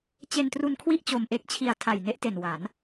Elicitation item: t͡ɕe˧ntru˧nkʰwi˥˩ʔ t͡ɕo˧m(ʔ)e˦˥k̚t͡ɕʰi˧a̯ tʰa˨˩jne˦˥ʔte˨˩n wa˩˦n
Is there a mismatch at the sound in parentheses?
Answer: no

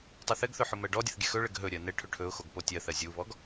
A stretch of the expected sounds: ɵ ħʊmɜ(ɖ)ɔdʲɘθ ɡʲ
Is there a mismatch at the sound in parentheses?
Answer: no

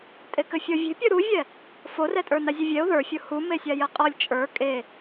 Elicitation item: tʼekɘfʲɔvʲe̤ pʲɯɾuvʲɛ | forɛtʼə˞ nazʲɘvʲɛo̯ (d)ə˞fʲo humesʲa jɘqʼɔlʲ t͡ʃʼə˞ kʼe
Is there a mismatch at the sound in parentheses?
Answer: yes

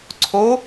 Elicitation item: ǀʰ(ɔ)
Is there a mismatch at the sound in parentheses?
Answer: yes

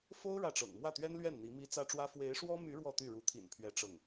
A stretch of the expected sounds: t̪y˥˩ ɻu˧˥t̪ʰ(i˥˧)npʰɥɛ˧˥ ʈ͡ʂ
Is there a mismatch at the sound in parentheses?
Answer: yes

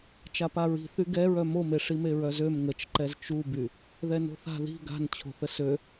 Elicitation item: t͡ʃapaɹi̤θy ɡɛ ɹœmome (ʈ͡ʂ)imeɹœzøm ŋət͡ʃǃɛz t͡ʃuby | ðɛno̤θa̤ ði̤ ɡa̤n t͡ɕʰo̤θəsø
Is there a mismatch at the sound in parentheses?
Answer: yes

